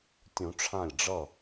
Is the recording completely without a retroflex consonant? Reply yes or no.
no